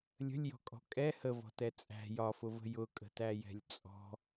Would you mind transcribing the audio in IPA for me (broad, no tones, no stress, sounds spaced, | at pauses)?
lʲ ə̤ lʲ j ɔ̤ kʼ ɔ̤ kʼ ɛ h ə v ɔ̤ t ɛ t͡sʼ æ̤ j ɒ f ʊ v ə̤ j ʊ kʼ ə̤ t æ j ɛ̤ lʲ t͡sʼ ɔ̤